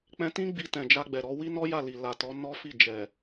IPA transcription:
k͡p ɛ̃˧ t ĩ˦ ɡ͡b i˧ t ɛ̃˨ d͡ʒ a˧ ɡ͡b ɛ˨ ɾ ɔ˧ w i˦ n ɔ˦ j a˦˨ l i˨ l a˨ t ɔ˨˦ n ɔ˦ f i˦˨ d͡ʒ ɛ˨

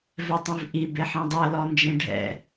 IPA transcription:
v ɛ tˤ ĩ v ʔ i b e ħ ɛ̃ dˤ ɤ l ɔ n d͡ʒ ẽ ɖʱ ɛ̰

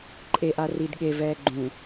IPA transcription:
ǃʼ e ʔ a r i d ɠ e v ɛː ɡ͡ǃ ũ

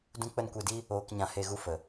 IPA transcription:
d ũ˦ k͡p ə˦ n kʷ e˧ d i˦ | oː˧ k ɲ ã˧ h e˧ ɣ u˧ f ə˨

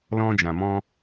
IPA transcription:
l ɔ̃˧ d͡ʒ ã˨ m ɔ̃˧

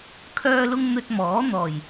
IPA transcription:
kʰ œː˧ l ʊ˧ ŋ n̪ ɵ˧ t̚ m ɔː˨˥ n̪ ɔː˨˩ j

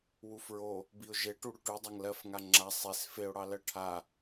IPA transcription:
w u f ɹ o | b i ʊ̯ ʒ e ʈ u ɽ ʉ ʈ ʉ dˤ a ŋ l ɜ f ŋ a ŋ͡ǁ a sˤ e s f e ʊ̯ ɽ ɑ l ɜ ʈʰ a

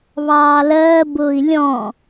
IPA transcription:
β ɑː l ɜː b ʊː i̯ lʲ ɔ̃

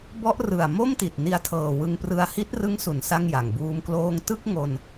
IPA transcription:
b ɔ˦˥ ʔ r ɯ˨˩ a̯ m o˥˩ m t i˨˩ t̚ n i˧ a̯ tʰ ɤː˨˩ w ɯ˧ ŋ p r ɯ˧ a̯ h i˦˥ t̚ r ɯ˦˥ ŋ s u˩˦ n s a˥˩ ŋ j a˨˩ ŋ b uː˦˥ m k l oː˥˩ ŋ t ɯ˥˩ k̚ ŋ o˧ n

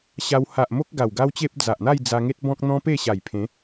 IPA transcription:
ɕ a˧ w h a˨ ʔ m o˦ k̚ ɡ a˨˩ w ɡ a˦ w t͡ɕ e˦ p̚ d͡z a˨ ʔ n̪ a˥˧ j d͡z a˧ ŋ e˦ t̚ b ɔ̃˦ k̚ n̪ ɔ̃˦ p e˥˧ ɕ a˨˩ j pʰ ẽ˨˦

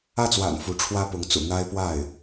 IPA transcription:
ä˥˩ t͡s w a̰˨˩ n f u˧˥ ʈ͡ʂʰ w ä˥ p ʊ˧˥ ŋ t͡s ṵ˨˩ n̪ a˥ ɪ̯ p w a˥˩ ɪ̯

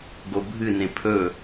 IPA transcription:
ɡ o bʱ ɨ n ẽ pʰ ɵ

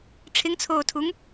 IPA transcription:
ʈ͡ʂʰ ɪ ŋ t͡sʰ oː tʰ u ŋ

